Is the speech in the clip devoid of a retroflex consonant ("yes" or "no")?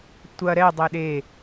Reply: yes